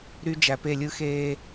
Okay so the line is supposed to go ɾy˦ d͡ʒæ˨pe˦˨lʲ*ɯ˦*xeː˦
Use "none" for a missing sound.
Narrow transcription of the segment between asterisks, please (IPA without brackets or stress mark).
ɯ˦